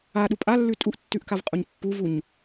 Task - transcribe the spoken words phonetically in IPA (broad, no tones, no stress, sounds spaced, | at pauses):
a ɗ u pʼ a lː ʉ tʼ u ʔ tː ʉ ʔ k a v qʼ u ɲ pː u v u ɲ